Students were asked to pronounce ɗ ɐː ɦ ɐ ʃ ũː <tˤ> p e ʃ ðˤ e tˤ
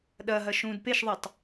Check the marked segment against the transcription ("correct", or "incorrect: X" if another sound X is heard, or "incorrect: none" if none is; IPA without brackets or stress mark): incorrect: d